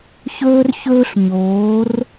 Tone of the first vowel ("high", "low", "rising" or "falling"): high